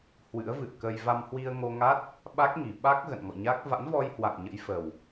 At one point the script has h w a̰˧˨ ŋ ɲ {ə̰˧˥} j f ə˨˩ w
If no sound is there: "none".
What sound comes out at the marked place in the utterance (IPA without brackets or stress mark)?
ə̰˧˥